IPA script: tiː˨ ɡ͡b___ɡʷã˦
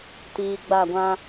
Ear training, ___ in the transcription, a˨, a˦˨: a˦˨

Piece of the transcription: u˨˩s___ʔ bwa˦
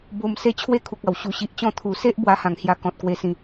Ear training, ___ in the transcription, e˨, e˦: e˦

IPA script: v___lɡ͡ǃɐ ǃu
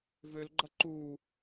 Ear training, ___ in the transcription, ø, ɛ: ø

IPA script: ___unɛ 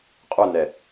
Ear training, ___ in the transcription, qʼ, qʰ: qʼ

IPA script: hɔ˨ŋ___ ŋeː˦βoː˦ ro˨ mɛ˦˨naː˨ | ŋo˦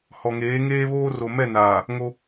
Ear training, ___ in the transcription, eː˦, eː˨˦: eː˨˦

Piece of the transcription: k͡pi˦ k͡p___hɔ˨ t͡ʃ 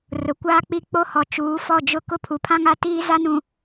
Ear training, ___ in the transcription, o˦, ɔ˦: o˦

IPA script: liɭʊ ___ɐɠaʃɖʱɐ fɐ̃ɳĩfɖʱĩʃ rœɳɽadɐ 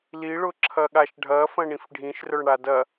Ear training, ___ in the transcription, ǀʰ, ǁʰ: ǁʰ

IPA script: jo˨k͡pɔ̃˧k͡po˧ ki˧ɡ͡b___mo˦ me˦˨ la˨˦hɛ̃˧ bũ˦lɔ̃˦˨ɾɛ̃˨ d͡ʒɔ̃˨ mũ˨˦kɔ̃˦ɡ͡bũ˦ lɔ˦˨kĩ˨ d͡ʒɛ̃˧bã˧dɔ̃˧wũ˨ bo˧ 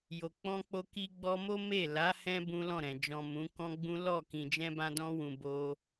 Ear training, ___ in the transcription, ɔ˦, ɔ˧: ɔ˧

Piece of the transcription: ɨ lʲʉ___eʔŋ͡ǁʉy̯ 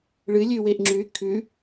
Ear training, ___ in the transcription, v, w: w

